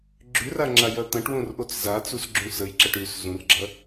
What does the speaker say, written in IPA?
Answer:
ɡ͡ǁʉra ŋ͡ǁajɐt̪ɐ̃ʈwõr ʔot͡szat͡sus ɡ͡ǁũsəjǁɐʈ ʉs zũrɡ͡ǁɐ

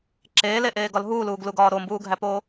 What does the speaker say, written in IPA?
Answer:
ǁeːleʔeːɡɒl ɦuːluːɡluɡɒː ɾombuːɡʱæpoː

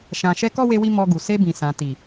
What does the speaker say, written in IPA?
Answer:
ʃã˨ʃɛ˧ kɔ˦we˧wi˧ mɔ˧ɡu˨ se˧bĩ˨sã˨ ti˨

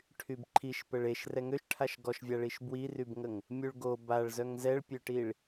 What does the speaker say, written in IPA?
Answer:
ʈʰybǃʰiʃ pəɭeʃ rɛŋøʃʈʰaʃ ɡɔʃvʲaɭiʃ bwirybŋəŋ | mʲuɭɡo baɭ zœŋzɛɭpʲøʈiɭ

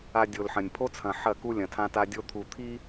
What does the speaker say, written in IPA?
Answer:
a˨ dʲo˨lħɐ̃˨nʲ pʰo˦t͡sʰɐ̃˨ ħɐ˦˨ku˦ lʲɐ̃˨tʰã˦ta˦dʲo˦ t̪ʰu˨ t̪ʰi˦

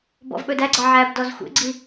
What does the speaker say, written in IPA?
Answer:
bɔ̰vɓɵdæɡ͡ǀɑ ʕæb dɔzxʷḛɡ͡ǀi

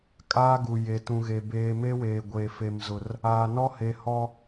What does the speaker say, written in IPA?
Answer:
kʼaː˦ɡu˨ je˨tũ˨ɣe˨ beː˨me˦ weː˨ ɡʷeː˨fe˨mzʊ˨r | aː˨nɔ˦ he˨hɔ˦

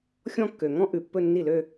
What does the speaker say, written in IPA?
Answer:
xʲɔ̃˥˧kːø˨˩ŋɔ̃˥ ʔʉ˨˩pːɵ˥˧nːi˥˩lø˥˧

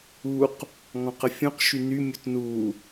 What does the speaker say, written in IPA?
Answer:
uq | ŋɔ̃qəfʲũq ʃyny mʲutnu

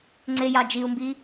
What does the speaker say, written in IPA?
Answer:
ŋ͡ǀejɑ d͡ʒiu̯mbi

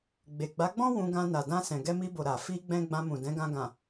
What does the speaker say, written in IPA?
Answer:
ɡ͡be˨ɡ͡ba˨˦ɡ͡bɔ̃˦ wũ˧ɡã˧ na˨dã˧ sɛ̃˨ɡɛ˧mi˧bo˨ ɾa˨ fi˧ɡ͡bɛ̃˧ ɡ͡bã˧mũ˨dɛ̃˨˦ɡã˧ ɡã˨

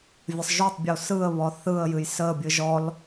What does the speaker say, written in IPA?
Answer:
vʲəsˤ ʒotˤbʲo sɯə̯βɔ θɯə̯jɨj səbʲɨ ʒɔl

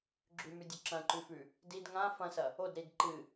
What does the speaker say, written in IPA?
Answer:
ɡ͡ǁʉmʉdʲɵ ǁɐ̃ǃʉfʉ | did ŋã fɐ̃sɐ | odɾid ǃɨ

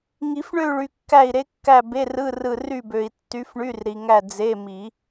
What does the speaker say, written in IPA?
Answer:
ŋi˨˩˦fɳø˦˨y̯ɭy˨ kːæ˦˨i̯ɾe˧˥kːæ˦˨ be˧˥˧rɯ˧˥˧ rɯ˦˨ ry˦˨bø˨i̯ tːy˧˥fɳy˧˥˧rɾi˨ ŋæ˦˨ d͡ze˧˥˧ mi˨˩˦

